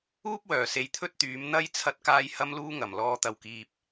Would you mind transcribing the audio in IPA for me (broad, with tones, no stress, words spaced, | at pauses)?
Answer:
uː˥p̚wœː˨˩se˨j t̪ʰɵ˥t̚t̪yː˨˥m n̪ɐ˧j t͡sʰɐ˥t̚kaː˥j hɐ˥mluː˥ŋɐ˨˩m lɔː˨˧t̪ɐ˨˩wkiː˨p̚